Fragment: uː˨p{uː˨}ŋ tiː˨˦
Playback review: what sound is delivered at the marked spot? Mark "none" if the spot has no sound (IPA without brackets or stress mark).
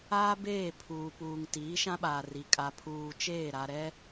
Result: uː˨